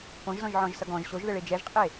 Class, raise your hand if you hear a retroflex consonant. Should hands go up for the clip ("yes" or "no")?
yes